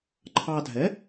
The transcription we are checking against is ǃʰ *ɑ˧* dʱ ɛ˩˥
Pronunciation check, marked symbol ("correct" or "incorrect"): correct